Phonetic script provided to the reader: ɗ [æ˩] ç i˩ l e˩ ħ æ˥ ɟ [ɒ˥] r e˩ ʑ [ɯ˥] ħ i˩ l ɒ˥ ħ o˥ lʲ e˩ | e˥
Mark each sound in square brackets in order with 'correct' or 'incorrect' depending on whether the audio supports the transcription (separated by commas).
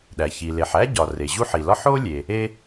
correct, incorrect, incorrect